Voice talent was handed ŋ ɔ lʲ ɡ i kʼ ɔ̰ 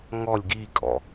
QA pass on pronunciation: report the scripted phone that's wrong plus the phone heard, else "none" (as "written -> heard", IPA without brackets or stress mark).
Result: none